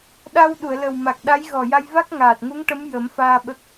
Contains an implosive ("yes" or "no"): yes